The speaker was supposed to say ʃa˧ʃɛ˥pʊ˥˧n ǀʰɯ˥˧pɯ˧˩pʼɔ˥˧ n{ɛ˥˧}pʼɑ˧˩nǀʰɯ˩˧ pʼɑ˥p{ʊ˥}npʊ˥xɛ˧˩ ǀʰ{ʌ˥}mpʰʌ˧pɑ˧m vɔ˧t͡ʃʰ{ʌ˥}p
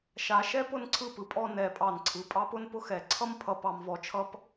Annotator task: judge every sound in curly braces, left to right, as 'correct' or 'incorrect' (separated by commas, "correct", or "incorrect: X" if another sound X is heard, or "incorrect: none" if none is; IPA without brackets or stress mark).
incorrect: ɛ˧˩, correct, correct, correct